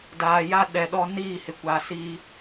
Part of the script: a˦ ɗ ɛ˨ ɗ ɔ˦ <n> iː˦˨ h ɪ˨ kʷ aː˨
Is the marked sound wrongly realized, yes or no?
no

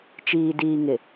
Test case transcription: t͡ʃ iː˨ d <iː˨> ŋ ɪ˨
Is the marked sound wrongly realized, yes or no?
no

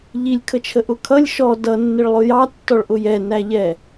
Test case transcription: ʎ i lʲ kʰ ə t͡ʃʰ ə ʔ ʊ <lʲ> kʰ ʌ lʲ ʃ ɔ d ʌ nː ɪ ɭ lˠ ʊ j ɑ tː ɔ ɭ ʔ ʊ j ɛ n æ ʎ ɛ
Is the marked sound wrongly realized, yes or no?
yes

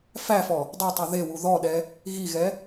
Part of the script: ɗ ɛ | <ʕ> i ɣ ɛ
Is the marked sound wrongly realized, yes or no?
yes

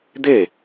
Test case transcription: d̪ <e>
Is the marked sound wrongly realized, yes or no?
no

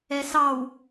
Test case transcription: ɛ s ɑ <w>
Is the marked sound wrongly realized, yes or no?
no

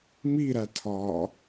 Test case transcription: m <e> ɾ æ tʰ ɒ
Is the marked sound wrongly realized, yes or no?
yes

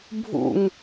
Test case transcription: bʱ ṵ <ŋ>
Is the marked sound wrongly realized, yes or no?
no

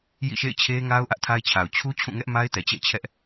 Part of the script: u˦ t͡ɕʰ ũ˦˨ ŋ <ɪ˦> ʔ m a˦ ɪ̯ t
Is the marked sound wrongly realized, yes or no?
yes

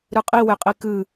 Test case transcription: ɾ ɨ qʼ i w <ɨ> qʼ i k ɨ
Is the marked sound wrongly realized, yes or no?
yes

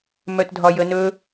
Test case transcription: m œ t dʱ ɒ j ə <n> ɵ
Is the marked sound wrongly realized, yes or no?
no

